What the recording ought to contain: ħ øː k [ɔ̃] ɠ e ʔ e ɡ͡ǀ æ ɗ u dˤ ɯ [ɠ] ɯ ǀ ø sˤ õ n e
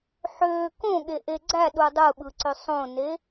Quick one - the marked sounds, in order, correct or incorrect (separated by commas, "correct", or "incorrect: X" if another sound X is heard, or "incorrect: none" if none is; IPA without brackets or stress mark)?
incorrect: õ, incorrect: ɓ